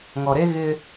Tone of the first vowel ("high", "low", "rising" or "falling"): low